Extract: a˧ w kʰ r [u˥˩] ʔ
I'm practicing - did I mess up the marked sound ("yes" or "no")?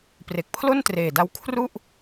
no